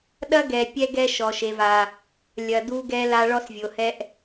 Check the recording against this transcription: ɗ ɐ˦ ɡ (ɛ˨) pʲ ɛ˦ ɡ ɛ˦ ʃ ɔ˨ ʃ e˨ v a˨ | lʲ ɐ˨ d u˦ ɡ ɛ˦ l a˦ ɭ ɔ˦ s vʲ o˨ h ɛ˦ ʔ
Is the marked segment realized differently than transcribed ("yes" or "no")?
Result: no